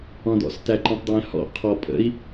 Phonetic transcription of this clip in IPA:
ɔ̃ d ɔ̰ s t æ ǃ ẽ tˤ d w æ̃ h ɔ̰ qʰ ɔ pʼ ə̰ i̯

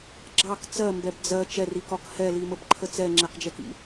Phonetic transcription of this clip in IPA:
ɡ͡ǁ ɑ k t͡s ɜ m b ɛ b d͡z ɜ t͡ʃ ɛ r i k ɒ k h ɛ l i m ə b ǃʰ ə t͡s ɛ ŋ͡ǁ ɛ q d͡ʒ ɛ k ḭ

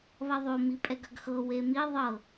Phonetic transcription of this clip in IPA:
β ɐ ðˤ o m i pʼ ɛ ɡ ɐ ɡ x ɤ w e m i ðˤ ɤ

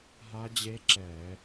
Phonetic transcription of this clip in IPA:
ɦ a˦˥ d͡ʑ e˦˥ ǁ ɛː˧˩˧

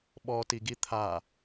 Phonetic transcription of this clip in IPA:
ɓ ɔ t i ɡ i t̪ʰ a

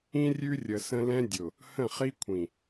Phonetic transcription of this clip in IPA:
ĩ˦ rʲ ʉ˦ rʲ ə˨ s ə̃˦ l ɛ̃˦ dʲ ʊ˨ | h ə̃˦˨ χ i˦ kʷʰ ĩ˨

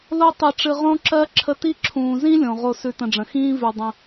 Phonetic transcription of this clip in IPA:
l o˦ tˤ i˨ ʈ͡ʂ ɨ˨ ʁ õ˦ ǁ ɜ˦ ǁʰ ə˦ t i˥ ǁʰ ũː˨ z ĩ˥ lʲ õ˩ ʁ o˨ s ʉ˨ t ə̃˨ ɖ͡ʐ ə̃˩ x ĩː˦ v ʉ˩ dˤ ə̃˨

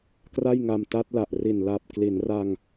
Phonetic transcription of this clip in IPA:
k r a˥˩ j ŋ a˧ m t a˦˥ t̚ l a˨˩ ʔ r i˨˩ n l a˨˩ p̚ k l i˩˦ n r a˧ ŋ

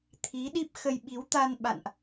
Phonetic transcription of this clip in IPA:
t̪ʰ i˨˦ ɗ i˦˥ p̚ x ə˧ j ɓ i˨˦ w t̪ a˧ n ɓ a̰˧˨ n ʔ

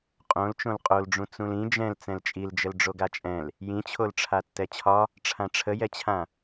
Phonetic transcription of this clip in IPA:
qʼ õ l t͡ʃ õ l qʼ o l ɖ͡ʐ ũ t͡s ũ l ĩ d͡ʒ ɛ̃ l t͡s ɛ̃ l t͡ʃʼ i l d͡ʒ ə l ɖ͡ʐ o ɡ a t͡ʃʼ ɛ̃ l | j ĩ t͡ɕʰ o l ʈ͡ʂʰ a tː ɛ t͡ɕʰ ɒ | ʈ͡ʂʰ ã ʈ͡ʂʰ ə j ɛ t͡ɕʰ ã

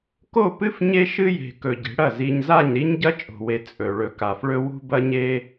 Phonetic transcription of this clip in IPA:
k o˦˨ p ɨ˦ f ɲ e˦ ʃ ɨ˦ j e̤˨ k ɵ˨ ɟ e̤˨˦ ɽ ɐ˦˨ z i˨ ɲ z a˦˨ ɲ ɾ i˦ ɲ ɟ ɐ˦ t͡ʃʼ o̤˨ w e˨ t͡sʼ ɵ˨ ɭ ɵ˨ k a˨ f ɭ ɵ˦ w ṳ˦ b ɐ˦ ɲ e˦

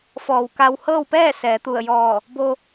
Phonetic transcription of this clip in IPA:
f ɔː˧˩ w k a˧ w h ɤː˥˨ w p ɛː˥˨ s ɛː˩˧ t̪ u˧˩ ə̯ j ɔː˧˩ | b o˧

